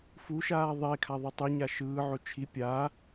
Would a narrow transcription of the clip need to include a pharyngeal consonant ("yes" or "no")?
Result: yes